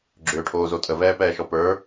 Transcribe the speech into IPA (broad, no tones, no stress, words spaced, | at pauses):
ɡ͡ǁʏːʈʰoːzo tʼəvɛːpɛːʃɔ pə˞